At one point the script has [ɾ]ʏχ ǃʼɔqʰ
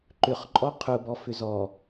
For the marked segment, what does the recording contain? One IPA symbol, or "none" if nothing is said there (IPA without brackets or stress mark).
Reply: ǃ